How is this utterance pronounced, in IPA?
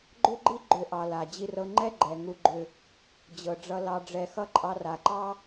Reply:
ɡ͡ǃʏ˥ɡ͡ǃi˥ ɡ͡ǃʏ˦ʔɑ˨la˩ d͡ʑi˨rɤ˨ŋ͡ǃɛ˦ ɡ͡ǃɛ˩ŋu˨ɡ͡ǃʏ˨ | d͡ʑɤ˩ɖ͡ʐʌ˨ lɑ˨ɖ͡ʐɛ˨xʌ˦ ǃʼɑ˨ra˩ǃɑ˦

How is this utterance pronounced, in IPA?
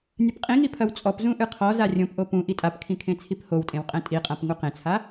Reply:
nʲɐpqʼĩŋi pʰɐwt͡sʼɔpzũ ʔɨqʰɔza rʲõpʔo pũ ʔitʼapkʰĩ kʰẽt͡sʰiphowtʼẽw qʼɛ̃tʼiqʼãp ŋuqẽt͡sʰa

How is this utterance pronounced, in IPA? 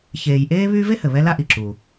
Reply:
çeː˨jʔeː˥ βyː˦ve˥hɘ˩ βɛ˥la˥ ʔi˩ǁu˩

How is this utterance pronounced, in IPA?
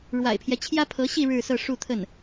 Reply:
ɻwa̰˨˩ɪ̯pʰjɛ˦ t͡ɕʰjä˥pʰɤ˧˥ɕi˥˧ ɻɻ̩˥˧sɤ˥˧ ʂu˥˧t̪ʰə˥˩n

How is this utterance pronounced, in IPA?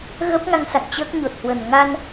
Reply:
ɣə˦˥p̚ŋa˧ŋ sa̰˧˨ŋt͡ɕəː˦˥k̚ɲo˨˩t̚hwə˨˩n ŋa˧n

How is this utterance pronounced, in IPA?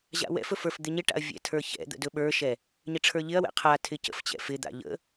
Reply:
ʑa̰wɛ̰fɵf ə˞fd̪ɪɲɪʈa̰ɐ̯ vʲɛ̰tʰə˞çɛ̰d̪ə̰ dɵɓə˞ʃɛ | ɲɪʈ͡ʂʰə˞ʎɪɐ̯wɛ̰ qʰa tʰɪcə̰ft͡ɕɛ̰ fɪd̪a̰ ʎə̰

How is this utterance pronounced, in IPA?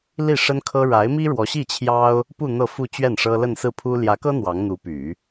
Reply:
li˥˩ʂə˥nkʰɤ˥ ɻa˧˥ɪ̯mi˥ɻwɔ˧˥ ɕi˥˩t͡ɕʰjɑ˥ʊ̯ | pu˥˧ n̪ɤ˥˧fu˥˧t͡ɕɥɛ˥˩n ʂɤ˥ lə˥˧nsɹ̩˥˩pʰu˥ ljä˧˥kɤ˥ n̪wɑ˧˥ŋn̪u˧˥py˨˩˦

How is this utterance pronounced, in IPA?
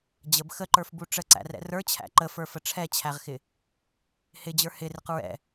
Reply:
d͡ʑəb xəǃə˞fbu ʈ͡ʂəǀæ̰rɛ̰ rə˞t͡ɕʰæ̰ ǃəfə˞fə ʈ͡ʂʰɛt͡ɕʰæʁxɪ | hɪd͡ʑə˞ hɪrɪq ɹɛ̰

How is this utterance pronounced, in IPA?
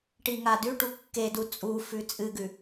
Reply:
ʈiŋadʉʈu kːedu t͡sʼufʉ t͡sʼɨɡʉ

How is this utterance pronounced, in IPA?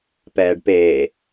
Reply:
pɛːɖpeː

